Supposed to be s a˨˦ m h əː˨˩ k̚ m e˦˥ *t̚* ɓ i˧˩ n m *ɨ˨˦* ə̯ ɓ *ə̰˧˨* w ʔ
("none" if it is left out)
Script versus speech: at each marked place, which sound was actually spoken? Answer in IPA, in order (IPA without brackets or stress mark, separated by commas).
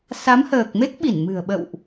k̚, ɨ̤˨˩, ə̰˧˨